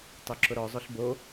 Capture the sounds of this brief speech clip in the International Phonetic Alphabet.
tˤ o ǁ ʊ ɾ ɔ zˤ o ɬ b o

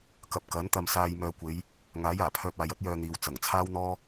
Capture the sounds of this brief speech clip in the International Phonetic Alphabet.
k ɐ˨ p̚ k ɐ˨˥ n t̪ ɐ˧ m s aː˧ j m œː˨ kʷ e˨˧ j | ŋ aː˨˥ j aː˨˩ pʰ œː˧ p̚ aː˨ j ɐ˥ t̚ j œː˧ n̪ iː˨ w t͡s ɐ˨˩ ŋ t͡sʰ aː˥ w n̪ ɔː˥

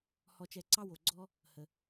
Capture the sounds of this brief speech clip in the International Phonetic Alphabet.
h ɔ˧ t͡ʃ ɛ˧ ǀ ɑ˥ w o˧ ɡ͡ǀ ɔ˥ | h ə˧

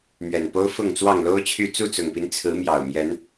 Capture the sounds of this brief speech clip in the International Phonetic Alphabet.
m ɥ ɛ˨˩ n p o˦ ʊ̯ f ʊ˥˨ ŋ t͡s w ɑ˥˨ ŋ l o˦ ʊ̯ t͡ɕʰ y˥˨ t͡s u˥˨ t͡s ʊ˨˩ ŋ p i˦ n t͡sʰ ɹ̩˨˦ m j ɑ˨˩ ʊ̯ m j ɛ˨˦ n

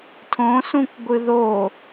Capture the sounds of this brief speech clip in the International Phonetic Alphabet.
tʰ õ s ũ kʷ ɡʷ ɨ ð o

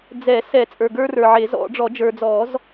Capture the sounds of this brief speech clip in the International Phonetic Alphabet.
d͡z ɛ˨˩˦ s ɛ˨˩˦ t͡sʼ ə˞˨ ɡ ə˞˦ r ə˞˨ ʕ e˨˩˦ z ɔ̰˨˩˦ ɖ͡ʐ ɔ˨˩˦ d͡ʒ ə˞˨ d͡z ɔ˨˩˦ z

